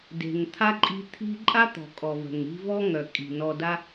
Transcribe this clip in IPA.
de̤˩ŋt̪ʰa˥ǃʼi̤˦ t̪ʰi̤˦ǃʼa˥t̪ɔ̤˩ kʼɔ˩və̤˩ŋ ɾi̤˦vɔ˥ŋœ˩ kʼi̤˩nɔ˨da˦

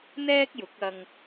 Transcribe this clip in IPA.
n̪ɛː˥k̚jʊ˨˥k̚ɐ˧ŋ

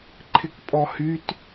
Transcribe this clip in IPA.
ǃʰɪkpʼɔhyt

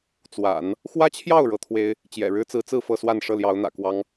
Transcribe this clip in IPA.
t͡swa̰˨˩˦n | xwä˥t͡ɕʰjɑ˥˩ʊ̯ ɻɤ˥t̪ʰwe˥ɪ̯ | t͡ɕjɛ̰˨˩ɻɻ̩˥t͡sɹ̩˧˥t͡sɹ̩˥˧ fɤ˥˧swa˥˧n ʂɤ˥˩ljɑ˧˥ʊ̯n̪ä̰˨˩kwɑ˥ŋ

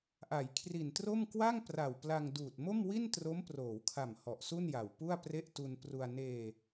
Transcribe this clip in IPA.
ʔa˩˦jkʰri˨˩ntro˥˩m kwa˥˩ŋpra˨˩wpla˧ŋ duː˨˩t̚mo˥˩mwi˥˩ntro˦˥m proː˩˦wkʰa˨˩m hɔ˨˩ʔsu˥˩nja˨˩wpu˥˩a̯ pre˥˩ʔ tu˧npru˧a̯ neː˧

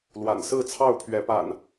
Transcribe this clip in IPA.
lwa̰˨˩nsɹ̩˥˨ t͡sʰɑ˥˨ʊ̯pʰɥɛ˨˦pa̰˨˩n

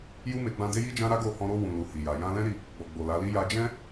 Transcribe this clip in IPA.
ju˦me˧ ɡ͡bã˧ de˦ji˦d͡ʒã˦ ɾa˦ɡo˦˨hɔ̃˧ ɾo˧ wũ˨lu˨ hi˨ja˨ jã˧lɛ̃˦ɾi˦˨ | ɡ͡bɔ˨ɡ͡bo˨la˨˦li˦ ja˧d͡ʒɛ̃˦

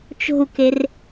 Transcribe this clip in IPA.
t͡ʃo̤u̯ker

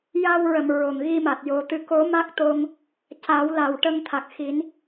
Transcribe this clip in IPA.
ja˧wɹə˨˩˨m ɹo˨˩˨ŋɣi˧ma˨˩t̚ jo˨˩˦t̪ɨ˧˥ ko˨˩˦ ma˦˥k̚t̪o˧ŋ | ca˨˩˦wla˨˩w ʈə˧ŋt̪ʰa˨˩k̚xi˨˩˦n

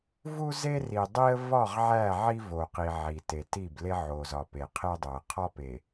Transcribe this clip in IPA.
vu˦ze˦ri˨ dˤi˦ə̯ vɒ˦˨ʁʕæ˦˨ʕi˦ vo˨qi˨ ʕi˨te˨ti˦˨ble˦ ʕo˨zɒ˨ pe˨qʰe˦dˤo˨ə̯ qʰɒ˦pe˨

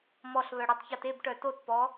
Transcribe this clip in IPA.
mɔɬβœɽetˤçɔt ebʈœ totpɔ

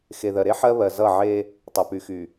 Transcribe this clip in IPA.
xe˨ðɜ˨ɾe˦ ħɜ˦βɜ˨ zʌ˦˨ʕe˦ | tˤʌ˨py˨xy˨

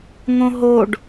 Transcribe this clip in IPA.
ŋõɦoɖ

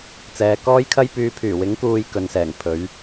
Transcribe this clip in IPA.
t͡sɛː˨˧kɔː˥jkʰɐ˥jpyː˧ pʰyː˨˩wɪ˨˥ŋ kuː˧jkɵ˨nsɛː˨˩ŋ pʰɵ˨˥ɥ

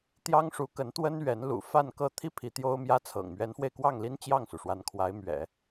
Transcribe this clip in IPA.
t̪jɑ˥ŋʂu˧˥kə˧˥n t̪wə˥n ɥɛ˧˥nlṵ˨˩ fa˥˧nkɤ˥˧ t̪ʰi˥˩ pʰi˧˥t̪jo˥ʊ̯mjä˥t͡sʰɤ̰˨˩ŋ mɥɛ˧˥nfwe˧ɪ̯kwɑ˥˩ŋli˥n t͡ɕjɑ˥˩ŋsu˩ʂwa˧˥n kʰwa˧˥ɪ̯mɥɛ̰˨˩˦

